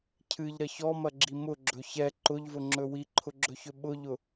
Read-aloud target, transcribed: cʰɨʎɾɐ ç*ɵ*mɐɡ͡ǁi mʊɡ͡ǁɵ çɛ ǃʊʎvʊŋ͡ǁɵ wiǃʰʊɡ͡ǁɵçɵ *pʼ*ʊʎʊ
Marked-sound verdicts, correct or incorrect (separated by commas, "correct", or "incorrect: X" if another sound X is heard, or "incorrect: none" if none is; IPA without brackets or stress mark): incorrect: ɔ, incorrect: ɓ